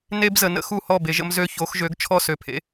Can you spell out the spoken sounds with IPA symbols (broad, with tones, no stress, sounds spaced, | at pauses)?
n e˦ b z ə˨ n ə̰˦ x u˥˩ h ɔ˥˩ b e˨˩˦ ʒ ə̰˦ m z ø˦ ç o˨˥ x ʒ ø˨˥ ɡ t͡ʃʰ ɔ˦ s ø˨ pʰ ḛ˦